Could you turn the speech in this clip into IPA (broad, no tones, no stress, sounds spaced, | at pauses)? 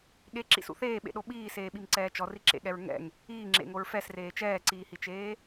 ɠ e ǁ ḭ s ṵ θ eː ɓ ḛ ɗ o ɓ iː s eː ɓ i m ǀ ɛː t͡ʃ ɔ r i ǁ ḛ ɠ ɛ ɹ ŋ ɛ̰ ŋ | iː ŋ͡ǁ ḛ ŋ o ɹ f ɛ s r eː t͡ʃ ɛː ǀ iː h i t͡ʃ eː